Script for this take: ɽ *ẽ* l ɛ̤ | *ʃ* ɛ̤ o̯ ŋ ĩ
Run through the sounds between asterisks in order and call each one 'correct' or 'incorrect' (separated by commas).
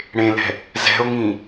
correct, incorrect